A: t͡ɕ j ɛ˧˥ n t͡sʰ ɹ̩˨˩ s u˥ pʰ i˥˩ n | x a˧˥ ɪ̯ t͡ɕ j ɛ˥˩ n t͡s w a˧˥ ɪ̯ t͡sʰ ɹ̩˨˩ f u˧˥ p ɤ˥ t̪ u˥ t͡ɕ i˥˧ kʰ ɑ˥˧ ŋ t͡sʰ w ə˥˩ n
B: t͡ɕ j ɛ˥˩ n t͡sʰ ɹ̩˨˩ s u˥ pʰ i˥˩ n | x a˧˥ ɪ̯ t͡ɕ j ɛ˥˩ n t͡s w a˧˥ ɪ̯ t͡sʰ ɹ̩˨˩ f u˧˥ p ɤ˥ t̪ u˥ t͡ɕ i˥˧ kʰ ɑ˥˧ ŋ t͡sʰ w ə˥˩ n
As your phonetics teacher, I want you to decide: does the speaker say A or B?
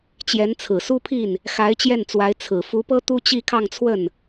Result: A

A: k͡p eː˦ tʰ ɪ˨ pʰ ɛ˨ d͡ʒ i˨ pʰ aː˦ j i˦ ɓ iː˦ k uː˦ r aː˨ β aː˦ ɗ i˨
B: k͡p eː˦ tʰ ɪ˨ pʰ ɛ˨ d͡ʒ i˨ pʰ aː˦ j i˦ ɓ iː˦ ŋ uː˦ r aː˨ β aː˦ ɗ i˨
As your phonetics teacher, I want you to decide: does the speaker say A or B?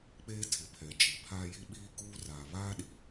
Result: A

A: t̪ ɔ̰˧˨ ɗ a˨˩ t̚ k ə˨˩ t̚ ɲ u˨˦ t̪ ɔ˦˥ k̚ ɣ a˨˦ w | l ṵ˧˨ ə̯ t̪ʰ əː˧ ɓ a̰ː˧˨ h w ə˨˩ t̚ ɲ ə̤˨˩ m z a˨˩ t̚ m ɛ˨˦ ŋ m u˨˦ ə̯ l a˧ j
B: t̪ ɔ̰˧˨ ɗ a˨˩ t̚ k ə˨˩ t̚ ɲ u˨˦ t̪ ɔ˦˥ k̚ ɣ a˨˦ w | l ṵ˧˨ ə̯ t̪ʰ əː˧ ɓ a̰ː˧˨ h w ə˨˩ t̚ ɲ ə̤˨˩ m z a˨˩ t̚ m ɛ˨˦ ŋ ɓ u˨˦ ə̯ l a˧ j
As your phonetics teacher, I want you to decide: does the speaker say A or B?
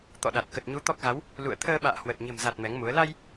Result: A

